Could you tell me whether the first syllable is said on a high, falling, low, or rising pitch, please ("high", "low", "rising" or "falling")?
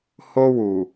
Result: high